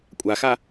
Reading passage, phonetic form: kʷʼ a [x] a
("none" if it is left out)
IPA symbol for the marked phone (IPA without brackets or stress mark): x